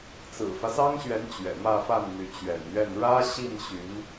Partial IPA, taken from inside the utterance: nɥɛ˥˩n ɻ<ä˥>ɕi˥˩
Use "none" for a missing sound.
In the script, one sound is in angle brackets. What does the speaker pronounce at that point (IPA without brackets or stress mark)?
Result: ä˥